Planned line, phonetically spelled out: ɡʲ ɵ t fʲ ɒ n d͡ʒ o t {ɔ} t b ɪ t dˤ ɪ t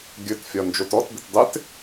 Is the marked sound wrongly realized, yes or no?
no